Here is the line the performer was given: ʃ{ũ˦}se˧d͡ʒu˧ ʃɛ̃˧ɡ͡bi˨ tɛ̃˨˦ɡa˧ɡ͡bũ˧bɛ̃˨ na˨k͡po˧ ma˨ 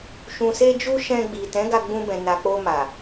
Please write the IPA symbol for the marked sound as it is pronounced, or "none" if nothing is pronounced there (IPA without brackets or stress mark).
ũ˨